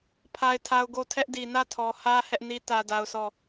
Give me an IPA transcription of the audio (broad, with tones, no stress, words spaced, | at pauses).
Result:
pʰa˦ɪ̯tʰa˦ʊ̯ ɡo˦˨ tʰɛ˦ʔdi˨ nä˦˨tʰɔ˨hä˦ hɛ˦ʔni˦ tä˦da˦ʊ̯sɔ˦˨